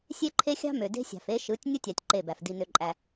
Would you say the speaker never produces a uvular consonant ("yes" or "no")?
yes